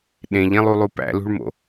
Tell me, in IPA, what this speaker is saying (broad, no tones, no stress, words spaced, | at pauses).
ɗẽʎẽlˠulˠu pæ̰lṳɭmo̰